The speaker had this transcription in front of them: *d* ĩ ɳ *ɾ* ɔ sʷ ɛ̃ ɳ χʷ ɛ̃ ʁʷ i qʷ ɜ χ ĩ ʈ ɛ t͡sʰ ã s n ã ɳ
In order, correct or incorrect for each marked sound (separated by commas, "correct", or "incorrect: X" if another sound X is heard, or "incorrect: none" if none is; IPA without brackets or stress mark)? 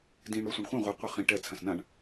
correct, correct